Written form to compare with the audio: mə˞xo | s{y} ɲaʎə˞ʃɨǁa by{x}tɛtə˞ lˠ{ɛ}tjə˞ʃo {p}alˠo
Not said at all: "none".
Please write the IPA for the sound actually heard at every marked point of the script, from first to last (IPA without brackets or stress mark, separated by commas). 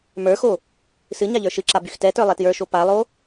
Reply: ɨ, x, ɛ, p